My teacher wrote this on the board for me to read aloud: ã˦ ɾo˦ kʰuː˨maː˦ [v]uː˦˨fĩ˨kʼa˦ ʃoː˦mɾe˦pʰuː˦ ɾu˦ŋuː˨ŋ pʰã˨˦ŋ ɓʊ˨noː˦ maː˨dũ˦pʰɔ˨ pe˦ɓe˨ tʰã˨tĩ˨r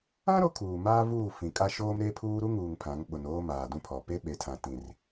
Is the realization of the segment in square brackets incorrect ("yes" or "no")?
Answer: no